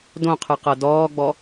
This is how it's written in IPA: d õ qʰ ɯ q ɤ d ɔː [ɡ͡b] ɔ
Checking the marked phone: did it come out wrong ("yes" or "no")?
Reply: no